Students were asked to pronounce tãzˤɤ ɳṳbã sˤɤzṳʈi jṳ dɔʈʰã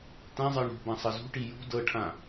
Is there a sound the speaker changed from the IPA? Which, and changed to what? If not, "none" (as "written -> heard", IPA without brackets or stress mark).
ɔ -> ɤ